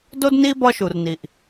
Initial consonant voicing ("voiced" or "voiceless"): voiced